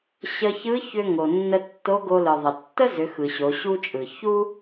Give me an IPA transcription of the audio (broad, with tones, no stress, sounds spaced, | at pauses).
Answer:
ɕ ə˧ ç ɯ˧˥ ç ʏ˧ ŋ o˩ nː ə˧ tː o˧˥ ɡ o˧ l ɯ˩ ðˤ ə˩ tː ə˥ z ʏ˩˧ x ɯ˩ ɕ o˩˧ ɕ u˥ t͡ʃʼ ɯ˩ ç u˥